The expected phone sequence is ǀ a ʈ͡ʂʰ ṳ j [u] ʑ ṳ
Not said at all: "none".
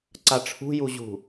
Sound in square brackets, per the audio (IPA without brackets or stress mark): u